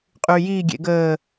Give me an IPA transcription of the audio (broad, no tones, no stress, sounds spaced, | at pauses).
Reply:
qʼ y j i ɡʲ ḛ ɡ əː